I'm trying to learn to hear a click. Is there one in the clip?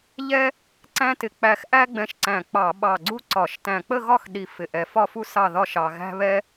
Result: yes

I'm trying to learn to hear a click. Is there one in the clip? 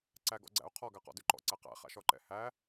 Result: yes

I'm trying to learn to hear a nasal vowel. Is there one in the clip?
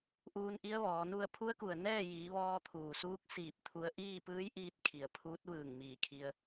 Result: no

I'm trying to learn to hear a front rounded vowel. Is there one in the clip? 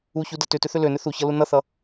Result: yes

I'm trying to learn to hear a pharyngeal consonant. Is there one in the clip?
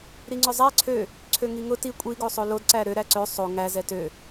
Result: no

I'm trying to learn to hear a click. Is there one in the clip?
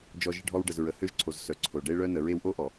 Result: yes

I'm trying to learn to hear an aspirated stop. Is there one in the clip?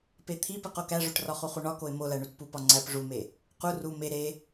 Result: yes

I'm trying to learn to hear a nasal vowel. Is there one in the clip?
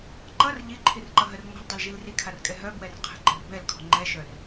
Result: no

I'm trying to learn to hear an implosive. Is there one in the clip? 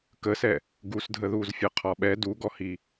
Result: yes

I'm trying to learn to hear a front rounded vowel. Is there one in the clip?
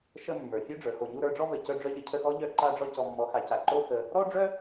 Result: yes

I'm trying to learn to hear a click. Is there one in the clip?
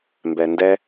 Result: no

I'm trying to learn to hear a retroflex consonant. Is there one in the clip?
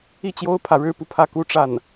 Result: yes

